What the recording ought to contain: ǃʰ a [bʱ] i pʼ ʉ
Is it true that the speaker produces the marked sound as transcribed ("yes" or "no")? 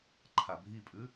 yes